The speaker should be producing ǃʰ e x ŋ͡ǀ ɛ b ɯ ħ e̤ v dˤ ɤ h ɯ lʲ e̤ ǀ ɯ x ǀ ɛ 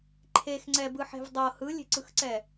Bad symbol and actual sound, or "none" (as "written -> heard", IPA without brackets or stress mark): none